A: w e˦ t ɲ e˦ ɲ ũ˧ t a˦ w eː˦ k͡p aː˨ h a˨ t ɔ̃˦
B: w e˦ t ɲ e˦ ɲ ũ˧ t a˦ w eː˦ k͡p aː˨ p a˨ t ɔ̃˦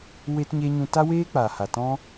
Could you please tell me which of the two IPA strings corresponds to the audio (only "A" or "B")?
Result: A